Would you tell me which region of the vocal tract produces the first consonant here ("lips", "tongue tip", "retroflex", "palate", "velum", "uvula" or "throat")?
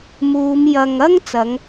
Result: lips